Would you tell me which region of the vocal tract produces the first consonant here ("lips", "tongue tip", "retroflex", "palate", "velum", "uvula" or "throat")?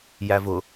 palate